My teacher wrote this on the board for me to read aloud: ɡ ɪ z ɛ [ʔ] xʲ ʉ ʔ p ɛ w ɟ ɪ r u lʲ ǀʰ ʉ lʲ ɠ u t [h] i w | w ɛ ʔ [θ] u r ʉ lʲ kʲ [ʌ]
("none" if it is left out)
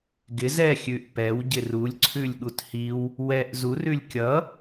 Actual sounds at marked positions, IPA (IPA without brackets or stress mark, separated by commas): none, h, z, ʌ